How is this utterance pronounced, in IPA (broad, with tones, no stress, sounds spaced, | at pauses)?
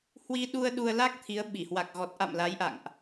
h w i˧ ɗ u˧ ə̯ ɗ u˧ ə̯ l a˦˥ k̚ t̪ʰ i˨˦ ə̯ ɓ i˧˩ h w a˨˩ k̚ ɣ ɔ˨˩ t̚ ʔ a̰˧˨ m l a˨˦ j ʔ a̰˧˨ ŋ ʔ